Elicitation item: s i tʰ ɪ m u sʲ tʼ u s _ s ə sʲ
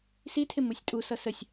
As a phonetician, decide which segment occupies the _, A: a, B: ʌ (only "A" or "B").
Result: B